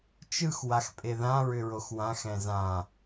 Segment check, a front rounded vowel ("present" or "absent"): present